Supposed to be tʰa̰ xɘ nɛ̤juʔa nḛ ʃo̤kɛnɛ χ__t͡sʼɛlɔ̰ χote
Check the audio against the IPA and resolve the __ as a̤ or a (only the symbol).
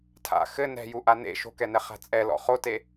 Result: a̤